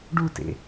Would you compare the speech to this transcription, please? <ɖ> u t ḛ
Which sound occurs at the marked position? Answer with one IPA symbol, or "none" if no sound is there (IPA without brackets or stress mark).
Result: ɖ